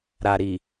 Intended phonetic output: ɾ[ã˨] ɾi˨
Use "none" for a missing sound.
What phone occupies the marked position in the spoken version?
a˨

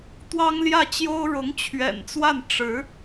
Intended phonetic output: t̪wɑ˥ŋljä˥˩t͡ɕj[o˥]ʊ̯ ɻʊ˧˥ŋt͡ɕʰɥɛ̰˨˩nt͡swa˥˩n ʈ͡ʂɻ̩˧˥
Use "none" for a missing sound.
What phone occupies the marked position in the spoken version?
o˥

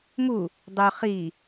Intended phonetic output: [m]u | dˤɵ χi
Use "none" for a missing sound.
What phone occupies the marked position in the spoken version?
m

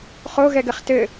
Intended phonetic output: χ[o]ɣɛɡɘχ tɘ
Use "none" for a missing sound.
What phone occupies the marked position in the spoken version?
o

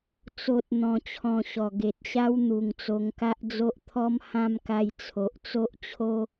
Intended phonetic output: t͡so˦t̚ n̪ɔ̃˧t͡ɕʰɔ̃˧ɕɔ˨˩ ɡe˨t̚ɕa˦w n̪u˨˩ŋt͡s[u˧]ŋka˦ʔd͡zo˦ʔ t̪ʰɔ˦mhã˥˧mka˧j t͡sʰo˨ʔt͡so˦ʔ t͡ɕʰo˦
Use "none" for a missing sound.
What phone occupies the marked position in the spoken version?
o˧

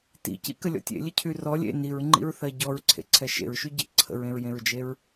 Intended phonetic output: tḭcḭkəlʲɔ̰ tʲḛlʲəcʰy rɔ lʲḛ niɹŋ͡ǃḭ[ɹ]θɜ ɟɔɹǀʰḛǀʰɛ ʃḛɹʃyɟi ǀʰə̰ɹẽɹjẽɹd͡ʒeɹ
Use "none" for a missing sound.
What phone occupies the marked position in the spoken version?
ɹ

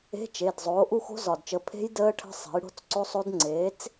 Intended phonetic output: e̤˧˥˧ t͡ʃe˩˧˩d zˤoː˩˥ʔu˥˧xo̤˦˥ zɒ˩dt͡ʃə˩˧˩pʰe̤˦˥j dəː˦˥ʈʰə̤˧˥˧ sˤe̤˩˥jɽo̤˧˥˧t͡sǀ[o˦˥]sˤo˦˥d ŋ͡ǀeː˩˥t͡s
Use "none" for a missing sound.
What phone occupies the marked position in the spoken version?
o˦˥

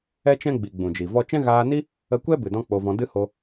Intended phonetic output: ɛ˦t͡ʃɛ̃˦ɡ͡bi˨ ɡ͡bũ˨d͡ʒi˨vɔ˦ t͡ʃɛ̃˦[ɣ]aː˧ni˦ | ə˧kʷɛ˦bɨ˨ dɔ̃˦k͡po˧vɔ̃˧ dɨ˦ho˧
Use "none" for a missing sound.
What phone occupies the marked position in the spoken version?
ɣ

